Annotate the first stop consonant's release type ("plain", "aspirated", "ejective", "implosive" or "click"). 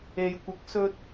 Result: plain